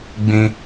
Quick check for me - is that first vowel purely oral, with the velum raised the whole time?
no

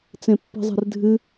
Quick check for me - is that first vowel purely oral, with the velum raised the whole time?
no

